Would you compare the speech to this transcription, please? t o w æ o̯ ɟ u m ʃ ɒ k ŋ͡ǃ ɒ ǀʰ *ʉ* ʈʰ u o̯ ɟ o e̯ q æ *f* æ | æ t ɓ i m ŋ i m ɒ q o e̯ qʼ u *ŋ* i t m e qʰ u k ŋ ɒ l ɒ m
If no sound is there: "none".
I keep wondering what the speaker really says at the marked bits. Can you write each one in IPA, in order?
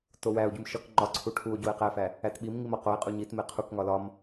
u, f, ɲ

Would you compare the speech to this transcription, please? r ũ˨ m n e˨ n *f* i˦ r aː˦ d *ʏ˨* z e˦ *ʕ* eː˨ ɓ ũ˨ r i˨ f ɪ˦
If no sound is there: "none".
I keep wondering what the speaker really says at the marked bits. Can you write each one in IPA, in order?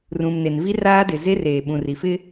v, ɪ˨, r

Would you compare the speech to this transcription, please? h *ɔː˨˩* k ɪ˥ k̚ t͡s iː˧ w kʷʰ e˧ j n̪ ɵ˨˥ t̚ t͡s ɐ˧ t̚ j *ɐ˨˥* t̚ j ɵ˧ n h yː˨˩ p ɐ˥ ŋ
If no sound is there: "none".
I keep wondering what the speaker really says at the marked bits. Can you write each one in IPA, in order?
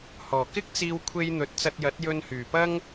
ɔː˨˩, ɐ˨˥

